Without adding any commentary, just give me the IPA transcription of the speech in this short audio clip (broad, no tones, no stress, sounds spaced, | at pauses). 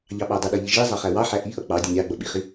ʎ ɑ ɓ ɑ dˤ ə ɗ ʌ ʎ i ʒ i zˤ ɑ χ æ w ɑ ħ æ ʔ i ʔ ʌ k͡p ɑ dʲ ə nʲ ɑ ɡ͡b ʌ ɓ i χ i